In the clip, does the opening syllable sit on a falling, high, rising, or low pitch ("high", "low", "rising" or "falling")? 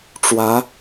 rising